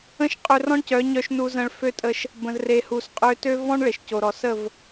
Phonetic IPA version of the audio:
ə̃˦ʃqʼø˧rɔ̃˦ɳcœ˨˦ ɲœ˧ʃnu˧zə̃˧ɭ fø˦tʼə˧ʃ | bə̃˨zre˨hu˨sqʼø˧ tø˦ vɔ̃˦ɳɭe˨ʃco˨ ɾɔ˨sə˦˨v

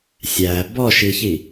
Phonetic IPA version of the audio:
sʲæ bɔʃiçi

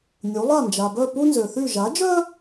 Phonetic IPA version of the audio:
nʲu˩˥ lˠa˥˩nd͡ʒa˩bœ˥˩ pu˥nzø˩θy˥˩ ʒa˩˥d͡ʒœ˥

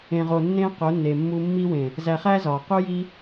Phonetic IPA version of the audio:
ẽ˨ʁoː˨ nːẽː˧ qo˨˦nːe˨mːuː˧ mːi˧wẽ˨ | zæ˨χæ˧ zɒː˨qu˦ji˦

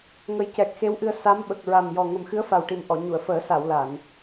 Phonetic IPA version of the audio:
ŋə˨˩jcɛ˨˩k̚xe˧˥wʔɨ˧ə̯ sa˧˥mɓə˨˩k̚ɹa˨˩m jɔ˨˩ŋə˨˩m xɨ˧˥ə̯fa˨˩wʈi˨˩m ʔɔ˨˩˨ɲu˨˩˨ə̯fəː˨˩˦sa˨˩˨w la˨˩˨n

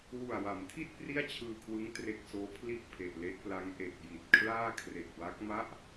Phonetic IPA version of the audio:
wu˨˩a̯wa˩˦mtʰi˥˩t̚ pri˥˩a̯t͡ɕʰɯː˧kʰwɯ˦˥ŋ tre˦˥k̚soː˦˥ pʰli˥˩ʔpʰe˨˩ʔle˦˥ʔpla˦˥ŋ ʔe˨˩k̚ji˨˩t̚kʰlaː˥˩kʰre˨˩k̚ wa˦˥k̚ma˥˩ʔ

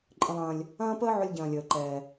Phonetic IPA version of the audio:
ǃʼə̃˧lˠɐ̃ː˧lʲ | ɐ̃ː˥pəː˥ ʕʊ˥lʲɟɐ̃ː˧lʲəː˧ ǃɛː˧

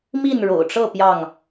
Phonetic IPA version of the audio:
mi˥˨nɻo̰˨˩ʊ̯ʈ͡ʂɤ˥˨ pjɑ˥˨ŋ

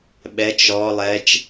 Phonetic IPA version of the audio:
ɓɛt͡ʃ ɔ lˠɛt͡ʃ

